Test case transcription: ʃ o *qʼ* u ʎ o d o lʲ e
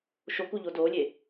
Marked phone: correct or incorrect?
incorrect